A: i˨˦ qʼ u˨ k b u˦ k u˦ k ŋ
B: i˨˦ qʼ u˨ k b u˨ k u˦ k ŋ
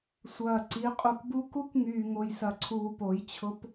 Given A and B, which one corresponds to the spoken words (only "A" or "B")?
A